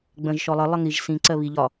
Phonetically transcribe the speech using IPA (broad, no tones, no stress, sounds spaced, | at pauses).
ɡ͡b ə̃ ʒ ʃ ɔ lˠ ʌ lˠ ʌ ŋ i ʒ s ĩ ǀ ɜ β i ʎ ɒ